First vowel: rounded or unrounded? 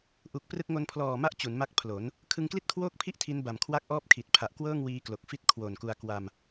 rounded